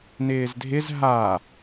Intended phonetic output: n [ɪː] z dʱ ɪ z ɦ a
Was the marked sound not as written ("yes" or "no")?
no